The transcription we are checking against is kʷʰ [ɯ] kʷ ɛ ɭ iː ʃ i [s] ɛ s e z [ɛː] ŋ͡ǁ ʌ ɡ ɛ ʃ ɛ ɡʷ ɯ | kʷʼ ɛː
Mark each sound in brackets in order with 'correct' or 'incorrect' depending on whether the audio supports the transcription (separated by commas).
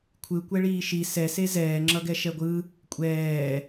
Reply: correct, correct, correct